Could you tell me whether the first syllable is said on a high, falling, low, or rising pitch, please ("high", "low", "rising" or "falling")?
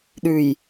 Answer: low